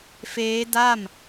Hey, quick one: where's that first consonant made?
lips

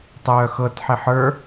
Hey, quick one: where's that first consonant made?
tongue tip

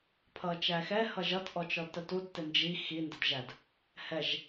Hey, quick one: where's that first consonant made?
lips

